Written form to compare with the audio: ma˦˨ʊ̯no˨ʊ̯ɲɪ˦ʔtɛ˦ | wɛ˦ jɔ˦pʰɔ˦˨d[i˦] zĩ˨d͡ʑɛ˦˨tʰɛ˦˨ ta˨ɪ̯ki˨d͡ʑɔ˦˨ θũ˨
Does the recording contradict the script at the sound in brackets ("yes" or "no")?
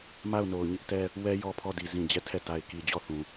yes